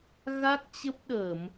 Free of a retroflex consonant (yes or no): yes